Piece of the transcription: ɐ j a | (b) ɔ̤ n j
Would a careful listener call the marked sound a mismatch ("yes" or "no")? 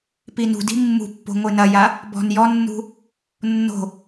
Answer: no